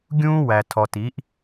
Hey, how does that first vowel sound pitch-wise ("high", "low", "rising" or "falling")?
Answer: high